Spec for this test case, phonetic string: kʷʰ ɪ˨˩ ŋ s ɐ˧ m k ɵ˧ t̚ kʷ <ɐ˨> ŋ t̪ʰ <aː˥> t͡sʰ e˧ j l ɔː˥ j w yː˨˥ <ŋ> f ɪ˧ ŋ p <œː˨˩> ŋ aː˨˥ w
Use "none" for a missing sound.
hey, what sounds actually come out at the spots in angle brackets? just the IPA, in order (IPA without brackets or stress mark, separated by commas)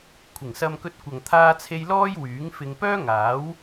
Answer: ɐ˨, aː˧, ŋ, œː˥